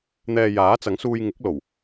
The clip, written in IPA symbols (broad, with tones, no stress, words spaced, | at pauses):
n̪ɛː˧jaː˨˥t͡sɐ˨˥ŋsuː˧j ŋɪ˨˥k̚lo˨˩w